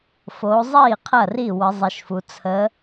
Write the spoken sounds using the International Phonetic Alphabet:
f o˨˦ zˤ i˥˩ qʰ ɐ˥˩ r i˥˩ w ə˨˦ zˤ i˨˦ ʃ f u˨˦ t͡sʰ ə˨˦

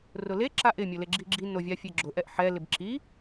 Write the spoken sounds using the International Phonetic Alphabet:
r ʊ l e ǁ a ʔ ɪ mʲ ʊ l e ɡ͡ǁ i ɡ͡ǁ i n o vʲ a fʲ e ɡ͡ǁ ʊ ʔ ɛ ʔ ħ ɛ l ɪ b ǁ i

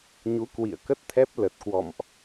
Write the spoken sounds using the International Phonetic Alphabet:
ɲ u˨˦ k w ḭ˧˨ ə̯ k ə˦˥ t̚ t̪ʰ ɛ˦˥ p̚ l ə˨˩ t̚ k w ɔ̰˧˨ m ʔ

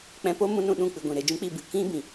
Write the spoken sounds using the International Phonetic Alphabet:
k͡p ɛ̃˧ p o˦ m ũ˦ n ũ˧ ɗ ũ˦˨ k͡p ɨ˨ ɡʷ ĩ˨ ɾ e˨ d͡ʒ ũ˦ k͡p i˦˨ b ɨ˨ k ĩ˦ b ĩ˨

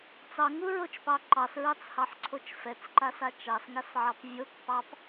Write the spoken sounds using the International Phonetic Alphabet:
t͡s ɑ ŋ u ɹ o t͡ʃ p ɑ ǃ ɑ s ɹ ɑ t͡s h ɑ ħ ǀʰ o t͡ʃ f ɛ t͡s ǃ a s a t͡ʃ ɑ s ŋ a s ʕ ɑ p vʲ o k p ɑ p

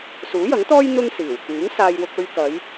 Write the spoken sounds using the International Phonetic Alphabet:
s uː˨˥ j ɐ˨˥ ŋ t̪ ɔː˥ j n̪ ʊ˥ ŋ s iː˨˩ w k yː˨˥ ŋ s aː˧ j w ʊ˧ k̚ ɵ˧ ɥ k ɐ˨˧ j

